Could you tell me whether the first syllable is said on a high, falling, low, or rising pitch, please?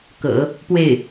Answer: low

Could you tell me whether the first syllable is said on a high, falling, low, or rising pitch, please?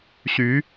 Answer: rising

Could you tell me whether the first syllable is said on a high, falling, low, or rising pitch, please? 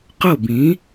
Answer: falling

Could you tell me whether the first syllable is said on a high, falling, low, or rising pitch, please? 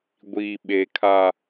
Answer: low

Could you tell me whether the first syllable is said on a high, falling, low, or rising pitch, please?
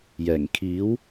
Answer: low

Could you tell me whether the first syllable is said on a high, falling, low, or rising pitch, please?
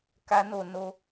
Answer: high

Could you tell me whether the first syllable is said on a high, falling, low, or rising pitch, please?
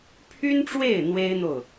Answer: high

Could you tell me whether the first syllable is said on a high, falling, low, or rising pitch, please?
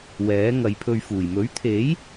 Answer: rising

